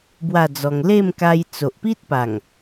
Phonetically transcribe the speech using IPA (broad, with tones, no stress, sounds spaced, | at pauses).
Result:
b w a˥˧ d͡z ɔ˧ ŋ l e˥˧ m k a˧ j t͡s o˨ ʔ p i˦ t̚ p a˨˩ ŋ